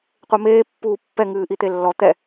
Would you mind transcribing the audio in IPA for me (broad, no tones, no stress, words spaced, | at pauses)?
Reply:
qʷemeː pːuːpːɛ ŋɨːʔit̪elːɔ t̪ɛ